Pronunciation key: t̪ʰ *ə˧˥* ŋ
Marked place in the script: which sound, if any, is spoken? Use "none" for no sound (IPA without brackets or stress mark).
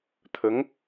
ə˧˥